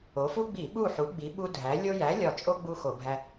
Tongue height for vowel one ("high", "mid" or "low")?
mid